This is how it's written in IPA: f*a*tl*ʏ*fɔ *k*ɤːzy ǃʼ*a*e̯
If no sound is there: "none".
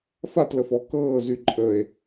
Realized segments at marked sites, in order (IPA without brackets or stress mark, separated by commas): a, ə, k, ə